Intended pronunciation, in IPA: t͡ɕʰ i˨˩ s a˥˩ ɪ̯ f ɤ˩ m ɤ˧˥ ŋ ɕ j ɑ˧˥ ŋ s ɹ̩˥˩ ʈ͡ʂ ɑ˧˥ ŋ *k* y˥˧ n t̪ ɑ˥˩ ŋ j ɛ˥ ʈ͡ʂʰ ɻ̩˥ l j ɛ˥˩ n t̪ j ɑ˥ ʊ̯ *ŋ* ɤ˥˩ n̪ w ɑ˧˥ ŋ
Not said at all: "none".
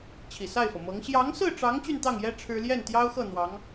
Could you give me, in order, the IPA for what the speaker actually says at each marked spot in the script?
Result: t͡ɕ, x

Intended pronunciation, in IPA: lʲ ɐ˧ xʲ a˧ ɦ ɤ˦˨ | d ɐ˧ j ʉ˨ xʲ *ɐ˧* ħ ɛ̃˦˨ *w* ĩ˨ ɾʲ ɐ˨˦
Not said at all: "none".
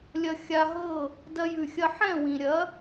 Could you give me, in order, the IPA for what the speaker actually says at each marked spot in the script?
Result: ɐ˧, w

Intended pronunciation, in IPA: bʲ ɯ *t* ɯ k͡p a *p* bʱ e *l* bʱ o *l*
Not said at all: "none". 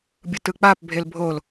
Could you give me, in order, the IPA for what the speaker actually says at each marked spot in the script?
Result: t, p, l, l

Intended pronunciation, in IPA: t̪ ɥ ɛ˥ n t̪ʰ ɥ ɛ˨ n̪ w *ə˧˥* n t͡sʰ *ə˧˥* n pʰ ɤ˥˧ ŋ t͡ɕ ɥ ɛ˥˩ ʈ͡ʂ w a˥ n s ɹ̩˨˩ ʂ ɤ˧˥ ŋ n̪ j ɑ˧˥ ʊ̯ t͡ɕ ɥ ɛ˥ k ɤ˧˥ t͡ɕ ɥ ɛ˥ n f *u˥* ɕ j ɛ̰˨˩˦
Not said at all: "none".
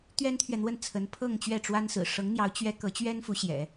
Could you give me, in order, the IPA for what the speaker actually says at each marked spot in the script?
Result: ə˥˩, ə˧˥, u˧˥

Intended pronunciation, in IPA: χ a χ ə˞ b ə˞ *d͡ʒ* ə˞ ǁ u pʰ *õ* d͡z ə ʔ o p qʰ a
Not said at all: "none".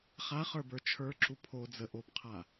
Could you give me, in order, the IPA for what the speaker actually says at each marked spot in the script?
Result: t͡ʃʰ, o

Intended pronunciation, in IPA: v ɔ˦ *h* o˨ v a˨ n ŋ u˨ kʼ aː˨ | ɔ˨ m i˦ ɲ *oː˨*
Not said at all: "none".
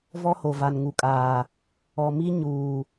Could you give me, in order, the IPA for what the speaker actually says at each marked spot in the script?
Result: h, uː˨

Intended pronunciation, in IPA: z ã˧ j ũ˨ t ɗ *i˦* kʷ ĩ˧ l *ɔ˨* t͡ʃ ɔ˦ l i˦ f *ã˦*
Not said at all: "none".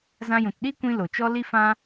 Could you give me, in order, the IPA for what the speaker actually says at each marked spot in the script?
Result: i˦, o˨, ã˦

